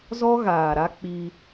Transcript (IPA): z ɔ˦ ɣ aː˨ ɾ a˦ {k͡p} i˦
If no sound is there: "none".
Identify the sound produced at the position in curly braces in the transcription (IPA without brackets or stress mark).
k͡p